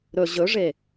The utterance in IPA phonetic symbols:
ɾɵ ʑɵʐe

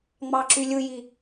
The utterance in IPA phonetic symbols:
ŋ͡mɑǁylʲɯji

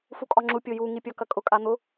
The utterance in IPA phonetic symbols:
fukʼɒŋ͡ǁu pʲoju ŋipʲɒkɐkʼʊ kʼan̪ʊ

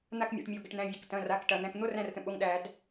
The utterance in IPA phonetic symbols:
n̪a˦˨kmʲɛ̰˩˧˩ʈmʲo˩˧˩ ɡə˩ʈn̪æ̃˩˧˩vʲɛ˩k tɐ̃˩˧˩ra˩˧˩k ʈɐ˩ n̪æ̃˩˧˩kn̪o˧˥˧r æ̃˦˨rtə̃˩ɓo˩˧˩ŋ ɗæ˧˩˧d

